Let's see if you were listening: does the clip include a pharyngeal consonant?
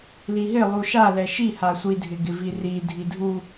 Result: no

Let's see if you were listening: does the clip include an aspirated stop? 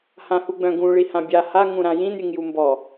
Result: no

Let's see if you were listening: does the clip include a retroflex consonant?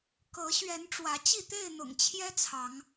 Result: yes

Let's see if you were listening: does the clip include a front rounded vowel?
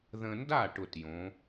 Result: no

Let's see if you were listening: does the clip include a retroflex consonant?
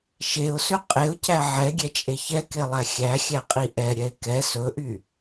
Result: no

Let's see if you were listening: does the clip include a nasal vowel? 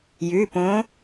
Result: yes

